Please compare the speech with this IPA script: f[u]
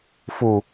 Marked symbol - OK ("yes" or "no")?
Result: yes